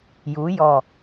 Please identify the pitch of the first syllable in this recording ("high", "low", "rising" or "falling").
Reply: rising